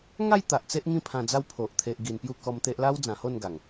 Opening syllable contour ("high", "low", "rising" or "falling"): falling